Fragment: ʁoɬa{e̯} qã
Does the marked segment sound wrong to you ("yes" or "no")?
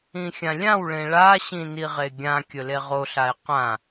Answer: no